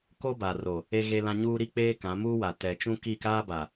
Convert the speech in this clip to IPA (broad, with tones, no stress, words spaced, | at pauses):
ko˦ba˨ro˨ | e˦ɣe˦lã˦ ɲuː˦ɾi˦k͡peː˦ kã˨˦muː˦wa˨ tɛ˨t͡ʃũ˦ ki˦˨kaː˦ba˨